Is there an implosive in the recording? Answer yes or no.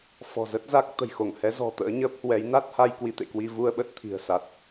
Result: yes